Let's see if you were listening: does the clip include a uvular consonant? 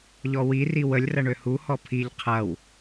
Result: yes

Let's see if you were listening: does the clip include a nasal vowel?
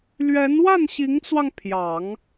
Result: no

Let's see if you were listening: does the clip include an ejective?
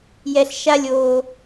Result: no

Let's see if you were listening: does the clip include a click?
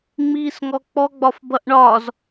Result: no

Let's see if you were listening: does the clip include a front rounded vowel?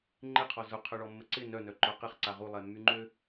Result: yes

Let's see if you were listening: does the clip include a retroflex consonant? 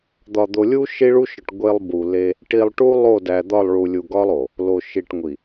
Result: yes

